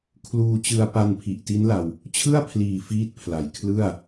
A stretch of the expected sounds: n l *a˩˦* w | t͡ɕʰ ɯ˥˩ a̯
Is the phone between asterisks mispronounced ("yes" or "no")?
yes